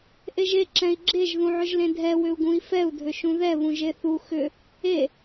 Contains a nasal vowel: yes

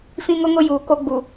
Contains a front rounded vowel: no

